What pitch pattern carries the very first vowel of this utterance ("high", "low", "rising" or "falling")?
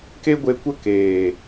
high